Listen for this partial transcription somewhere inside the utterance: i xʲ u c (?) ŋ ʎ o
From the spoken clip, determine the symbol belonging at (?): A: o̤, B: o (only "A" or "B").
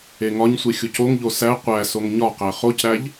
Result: B